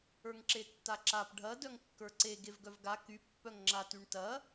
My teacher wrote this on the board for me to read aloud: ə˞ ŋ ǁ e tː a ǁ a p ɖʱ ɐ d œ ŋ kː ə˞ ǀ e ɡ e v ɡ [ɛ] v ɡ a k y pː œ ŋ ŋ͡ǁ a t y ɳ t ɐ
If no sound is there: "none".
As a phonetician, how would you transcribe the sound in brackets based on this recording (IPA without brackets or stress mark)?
œ